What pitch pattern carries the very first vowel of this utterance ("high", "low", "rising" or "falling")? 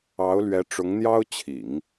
rising